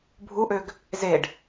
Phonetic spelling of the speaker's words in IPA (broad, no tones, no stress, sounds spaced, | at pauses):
bʱ u ʔ ø ɡ | z e ɖ